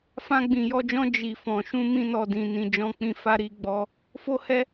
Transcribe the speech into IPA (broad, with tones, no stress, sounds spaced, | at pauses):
f ã˧ ɡ͡b ĩ˨ j ɔ˧ d͡ʒ ɔ̃˧ d͡ʒ i˨ f ɔ̃˨ ʃ ũ˧ m ĩ˦ n ɔ˧ d ĩ˨ n ĩ˧ d͡ʒ ɔ̃˦ k͡p ĩ˦ f a˦ ɾ i˦ ɡ͡b ɔ˧ | f o˦ h ɛ˦